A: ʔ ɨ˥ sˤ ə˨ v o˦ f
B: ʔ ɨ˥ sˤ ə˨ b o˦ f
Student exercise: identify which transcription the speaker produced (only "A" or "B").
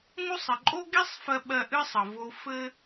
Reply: A